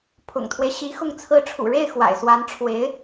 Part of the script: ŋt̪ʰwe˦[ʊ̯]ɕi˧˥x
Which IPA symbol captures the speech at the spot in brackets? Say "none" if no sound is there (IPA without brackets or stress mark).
ɪ̯